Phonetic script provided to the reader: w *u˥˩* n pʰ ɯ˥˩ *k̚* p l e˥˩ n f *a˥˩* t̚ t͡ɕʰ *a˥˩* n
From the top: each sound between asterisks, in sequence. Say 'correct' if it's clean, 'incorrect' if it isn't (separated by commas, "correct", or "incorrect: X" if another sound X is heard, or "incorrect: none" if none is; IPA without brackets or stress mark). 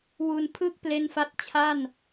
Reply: incorrect: u˧, correct, correct, correct